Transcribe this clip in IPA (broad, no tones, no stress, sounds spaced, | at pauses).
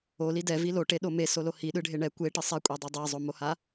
o l i d ɛ v i l o ʈ e ɗ o m e s o l o h i ɗ ɯ ɖʱ e ɳ ɛ kʷ e ʈ ɯ sˤ ɛ kʷʼ ɛ dˤ a dˤ e zˤ o m o h a